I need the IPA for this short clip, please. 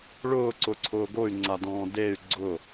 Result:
ɭ ʊː ǀ ʊ ǀʰ ʊː ɡ o y̯ ŋ͡ǀ a d ɔ̃ː d e y̯ ɡ͡ǀ ʊ

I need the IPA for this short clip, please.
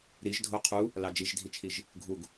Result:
ɾ i ʒ dʱ o qʰ u | l ɑ d͡ʒ i ʒ dʱ i t͡ʃʰ i ʒ | ɡʱ u ɡ

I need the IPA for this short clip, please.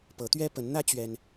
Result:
p ɤ˨˦ t̪ ɥ ɛ˦ p ə˨˦ n n̪ ä˦ t͡ɕ ɥ ɛ˦ n

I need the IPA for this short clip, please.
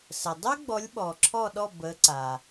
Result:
s ə˩ dˤ ø˥ ɡ͡b ɔ˨˦ lʲ ɓ ɔ˩ ǁʰ ɔ˦˨ ɗ ɔ˦˨ b ə˨˦ ǀ a˩

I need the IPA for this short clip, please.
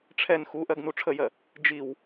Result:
ʈ͡ʂʰ ɛ n x u ʔ ɜ ɡ n u ʈ͡ʂʰ ə j ɜ | d͡ʒ i w

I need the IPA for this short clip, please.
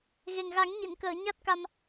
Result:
ɣ e˨˩ ŋ ɣ a˨˩˦ ŋ ɲ i˨˩˨ n k əː˨˩˨ ɲ a˦˥ t̚ k a˧ m

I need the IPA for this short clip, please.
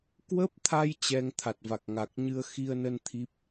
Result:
k w ə˦˥ p̚ t̪ʰ a˧ j t͡ɕ ɛ˧ ŋ t̪ʰ a˨˩ t̚ v a˨˩ k̚ ŋ a˨˩ k̚ ɲ ɨ˧ ə̯ x i˧ ə̯ n ə˧ n t̪ʰ i˦˥ p̚

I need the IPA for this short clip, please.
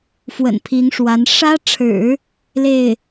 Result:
f w ə̰˨˩ n pʰ i˧˥ ŋ ʂ w a˧˥ n ʂ ä˥ ʈ͡ʂʰ ɻ̩˨˩˦ | l e˥˩ ɪ̯

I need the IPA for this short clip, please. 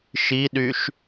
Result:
ʃ i ɗ y ʃ

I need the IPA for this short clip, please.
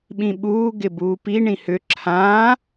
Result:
ɓ ĩ ɓ uː ɡ ɪ b uː p i ɳ ĩ h ʏ ǁʰ ãː

